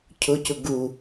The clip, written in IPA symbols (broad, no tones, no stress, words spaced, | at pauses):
cʰʊcʊ ɡu